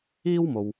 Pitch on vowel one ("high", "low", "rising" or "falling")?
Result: high